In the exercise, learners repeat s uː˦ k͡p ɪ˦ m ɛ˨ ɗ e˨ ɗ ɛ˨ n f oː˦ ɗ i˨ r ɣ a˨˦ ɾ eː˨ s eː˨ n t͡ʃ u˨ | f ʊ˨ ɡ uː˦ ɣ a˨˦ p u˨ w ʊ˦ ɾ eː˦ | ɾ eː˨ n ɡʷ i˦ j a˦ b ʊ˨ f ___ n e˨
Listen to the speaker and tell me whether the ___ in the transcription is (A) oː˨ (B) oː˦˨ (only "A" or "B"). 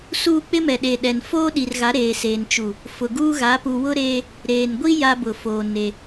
A